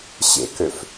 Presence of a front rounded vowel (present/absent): present